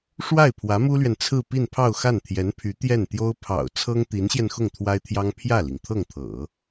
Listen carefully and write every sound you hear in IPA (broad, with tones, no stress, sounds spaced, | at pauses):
ʂ w a˥˩ ɪ̯ pʰ w ä˧˥ m u˥ l ɥ ɛ˨ n t͡sʰ ɹ̩˥˧ p i˥˧ n pʰ ɑ˥˧ ʊ̯ x a˥˩ n t̪ʰ j ɛ˧˥ n pʰ y˧˥ t̪ j ɛ˥˩ n t̪ j o˥ ʊ̯ pʰ ɑ̰˨˩ ʊ̯ t͡sʰ ɤ˥ ŋ t̪ i˧˥ n ɕ j ɛ˧ n x ʊ˥˩ ŋ t̪ʰ w a˥ ɪ̯ t̪ʰ j ɑ˥ ŋ pʰ j ä˥˩ l i˩ ŋ t̪ʰ ɤ˥˩ ŋ t̪ʰ ɤ̰˨˩˦